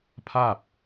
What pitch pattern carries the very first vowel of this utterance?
falling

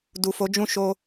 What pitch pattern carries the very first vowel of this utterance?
low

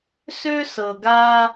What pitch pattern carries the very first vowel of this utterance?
high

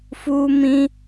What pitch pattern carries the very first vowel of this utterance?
high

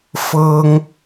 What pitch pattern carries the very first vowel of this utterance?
high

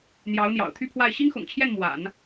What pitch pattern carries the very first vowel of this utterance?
rising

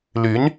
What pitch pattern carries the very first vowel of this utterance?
rising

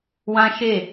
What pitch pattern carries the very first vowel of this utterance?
high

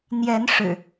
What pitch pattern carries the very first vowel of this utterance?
rising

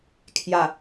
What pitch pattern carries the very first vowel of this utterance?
low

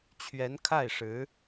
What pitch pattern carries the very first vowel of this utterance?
rising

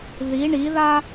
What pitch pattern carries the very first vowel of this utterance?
rising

